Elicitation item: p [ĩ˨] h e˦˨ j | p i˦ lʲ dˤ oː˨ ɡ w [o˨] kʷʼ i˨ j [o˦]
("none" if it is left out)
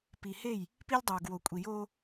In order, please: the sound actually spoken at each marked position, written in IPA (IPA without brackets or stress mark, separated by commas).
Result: i˨, o˨, oː˦